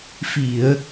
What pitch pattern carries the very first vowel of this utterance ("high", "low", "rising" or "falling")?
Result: low